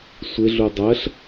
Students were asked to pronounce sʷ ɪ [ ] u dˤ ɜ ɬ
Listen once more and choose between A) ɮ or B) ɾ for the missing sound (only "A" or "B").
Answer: A